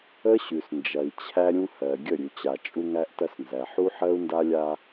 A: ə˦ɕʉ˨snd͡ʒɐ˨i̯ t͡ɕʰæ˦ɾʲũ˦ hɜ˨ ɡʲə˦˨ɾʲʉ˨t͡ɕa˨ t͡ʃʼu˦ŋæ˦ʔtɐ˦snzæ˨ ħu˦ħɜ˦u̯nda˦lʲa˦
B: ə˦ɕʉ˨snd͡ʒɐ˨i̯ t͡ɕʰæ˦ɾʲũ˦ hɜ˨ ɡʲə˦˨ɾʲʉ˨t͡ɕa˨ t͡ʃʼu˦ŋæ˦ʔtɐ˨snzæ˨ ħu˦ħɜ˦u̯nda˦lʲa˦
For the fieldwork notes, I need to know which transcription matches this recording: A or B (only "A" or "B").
A